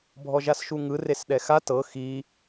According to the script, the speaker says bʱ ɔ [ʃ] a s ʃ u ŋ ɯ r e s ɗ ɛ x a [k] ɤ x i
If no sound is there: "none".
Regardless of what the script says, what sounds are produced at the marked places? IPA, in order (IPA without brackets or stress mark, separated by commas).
ʒ, t